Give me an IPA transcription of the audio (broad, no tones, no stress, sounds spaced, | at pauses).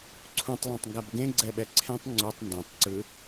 ǀʰ ũ tˤ lˠ ũ tˤ ŋ ɡ a b ɡ ẽ ɡ͡ǀ ɛ ɓ ɛ ǀʰ ẽ tˤ ŋ͡ǀ u tˤ n d õ tˤ ǀ ɯ